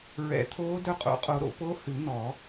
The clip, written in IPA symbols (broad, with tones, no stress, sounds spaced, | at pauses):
ɹ ɛ̰˨˩˦ t̪ʰ oː˧˥ d œ˧˥ qʼ o̰˨˩˦ qʼ o˨˩˦ ɾ o̰˨˩˦ p o˧˥ h ɨ˨˩˦ n̪ ɔ˨˩˦